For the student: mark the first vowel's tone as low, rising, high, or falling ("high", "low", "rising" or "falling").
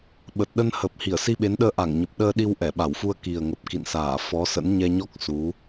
low